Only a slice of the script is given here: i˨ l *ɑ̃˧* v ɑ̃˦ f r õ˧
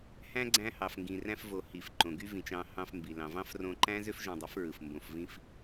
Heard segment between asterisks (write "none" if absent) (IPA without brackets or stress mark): ɑ̃˨